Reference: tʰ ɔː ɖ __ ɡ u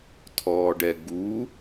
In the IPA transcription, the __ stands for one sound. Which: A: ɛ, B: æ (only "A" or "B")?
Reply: A